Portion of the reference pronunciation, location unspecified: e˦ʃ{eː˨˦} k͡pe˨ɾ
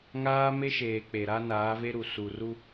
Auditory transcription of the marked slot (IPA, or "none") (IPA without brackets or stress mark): eː˨